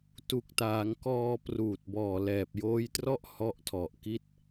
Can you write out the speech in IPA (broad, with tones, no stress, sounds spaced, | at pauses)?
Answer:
t u˨˩ k̚ t aː˩˦ ŋ k ɔː˧ p r uː˨˩ t̚ b ɔː˨˩ l ɛː˨˩ p̚ j oː˦˥ j t r ɔ˥˩ ʔ h ɔ˦˥ ʔ tʰ ɔ˨˩ ʔ k i˥˩ t̚